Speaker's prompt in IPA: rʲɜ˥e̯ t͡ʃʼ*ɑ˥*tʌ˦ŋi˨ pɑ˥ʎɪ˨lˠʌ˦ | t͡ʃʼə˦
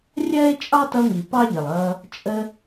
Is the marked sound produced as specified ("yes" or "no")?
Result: yes